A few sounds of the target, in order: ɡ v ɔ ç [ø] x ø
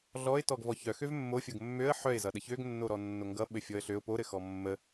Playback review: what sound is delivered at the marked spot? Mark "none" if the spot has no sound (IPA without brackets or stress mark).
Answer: œ